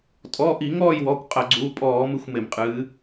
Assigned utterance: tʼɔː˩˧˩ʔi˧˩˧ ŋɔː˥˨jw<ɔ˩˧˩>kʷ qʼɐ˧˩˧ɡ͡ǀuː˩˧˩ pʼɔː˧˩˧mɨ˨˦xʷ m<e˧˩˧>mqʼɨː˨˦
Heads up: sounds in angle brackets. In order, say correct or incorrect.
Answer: correct, correct

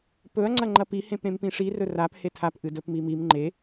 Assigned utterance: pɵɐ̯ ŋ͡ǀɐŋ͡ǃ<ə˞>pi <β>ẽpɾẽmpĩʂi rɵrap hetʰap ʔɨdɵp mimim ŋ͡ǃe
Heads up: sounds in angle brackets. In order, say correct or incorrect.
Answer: incorrect: ɐ, incorrect: h

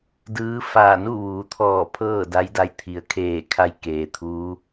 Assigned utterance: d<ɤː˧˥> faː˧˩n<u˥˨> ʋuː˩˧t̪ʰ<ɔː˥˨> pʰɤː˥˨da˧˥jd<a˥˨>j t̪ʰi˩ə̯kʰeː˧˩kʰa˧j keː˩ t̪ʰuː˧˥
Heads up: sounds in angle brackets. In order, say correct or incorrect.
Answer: incorrect: ɯː˧˥, correct, incorrect: ɔː˧˩, incorrect: a˧˥

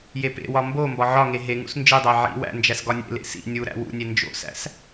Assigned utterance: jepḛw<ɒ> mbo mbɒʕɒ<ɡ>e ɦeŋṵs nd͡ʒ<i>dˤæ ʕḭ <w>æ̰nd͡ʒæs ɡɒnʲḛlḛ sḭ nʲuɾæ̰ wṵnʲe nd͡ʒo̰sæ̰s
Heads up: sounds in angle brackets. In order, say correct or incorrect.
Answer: correct, incorrect: ŋ, correct, correct

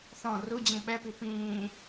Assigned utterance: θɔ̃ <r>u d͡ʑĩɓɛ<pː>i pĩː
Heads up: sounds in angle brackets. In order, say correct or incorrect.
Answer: correct, incorrect: p

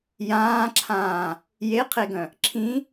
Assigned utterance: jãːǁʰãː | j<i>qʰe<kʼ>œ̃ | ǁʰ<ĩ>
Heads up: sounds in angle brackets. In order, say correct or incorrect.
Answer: incorrect: e, incorrect: ɡ, correct

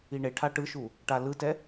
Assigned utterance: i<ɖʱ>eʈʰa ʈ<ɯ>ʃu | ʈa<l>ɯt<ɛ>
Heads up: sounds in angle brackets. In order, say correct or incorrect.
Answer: incorrect: ɳ, correct, correct, correct

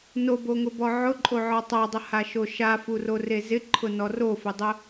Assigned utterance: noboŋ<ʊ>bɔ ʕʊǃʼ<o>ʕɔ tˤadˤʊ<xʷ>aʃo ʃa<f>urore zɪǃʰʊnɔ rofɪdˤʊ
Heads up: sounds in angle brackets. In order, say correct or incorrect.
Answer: correct, correct, incorrect: h, correct

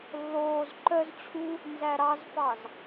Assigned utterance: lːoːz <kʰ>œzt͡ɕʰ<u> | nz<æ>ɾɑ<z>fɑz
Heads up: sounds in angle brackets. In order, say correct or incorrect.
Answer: incorrect: ǃ, correct, correct, correct

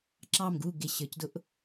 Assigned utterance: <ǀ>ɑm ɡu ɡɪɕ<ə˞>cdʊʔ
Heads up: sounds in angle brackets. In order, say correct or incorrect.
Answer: incorrect: ǁ, correct

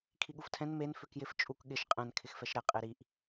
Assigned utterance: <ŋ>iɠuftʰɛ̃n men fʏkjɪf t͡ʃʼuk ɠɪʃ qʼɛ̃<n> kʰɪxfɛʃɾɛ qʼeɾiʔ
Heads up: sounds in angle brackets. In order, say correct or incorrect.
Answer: incorrect: kʰ, correct

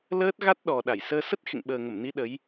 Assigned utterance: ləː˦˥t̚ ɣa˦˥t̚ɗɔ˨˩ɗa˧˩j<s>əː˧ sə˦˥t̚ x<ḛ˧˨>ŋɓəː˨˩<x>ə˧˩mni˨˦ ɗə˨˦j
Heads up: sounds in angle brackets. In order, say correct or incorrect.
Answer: correct, correct, incorrect: ŋ

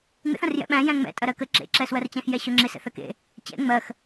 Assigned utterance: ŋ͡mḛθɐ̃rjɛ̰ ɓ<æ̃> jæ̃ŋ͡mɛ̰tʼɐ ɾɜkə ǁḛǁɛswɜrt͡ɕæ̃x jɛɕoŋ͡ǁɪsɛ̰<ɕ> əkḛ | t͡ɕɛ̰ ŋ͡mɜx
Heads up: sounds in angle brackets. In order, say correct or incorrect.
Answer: correct, incorrect: θ

